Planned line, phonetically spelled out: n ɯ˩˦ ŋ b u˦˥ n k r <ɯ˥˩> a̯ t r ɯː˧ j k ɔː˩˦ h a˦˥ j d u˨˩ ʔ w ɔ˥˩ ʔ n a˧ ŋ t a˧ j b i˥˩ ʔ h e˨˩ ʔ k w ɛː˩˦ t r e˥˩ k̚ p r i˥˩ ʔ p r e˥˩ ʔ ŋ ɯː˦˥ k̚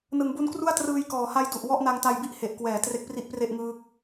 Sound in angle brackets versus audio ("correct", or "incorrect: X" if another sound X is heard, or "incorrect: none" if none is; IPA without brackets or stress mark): incorrect: u˥˩